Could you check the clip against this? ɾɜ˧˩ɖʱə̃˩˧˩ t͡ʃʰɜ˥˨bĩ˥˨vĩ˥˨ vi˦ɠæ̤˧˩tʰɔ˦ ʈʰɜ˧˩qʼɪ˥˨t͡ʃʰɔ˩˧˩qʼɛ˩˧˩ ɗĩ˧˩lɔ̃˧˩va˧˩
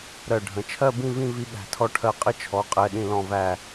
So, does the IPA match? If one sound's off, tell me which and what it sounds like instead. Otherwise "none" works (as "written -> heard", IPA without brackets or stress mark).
a˧˩ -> æ˧˩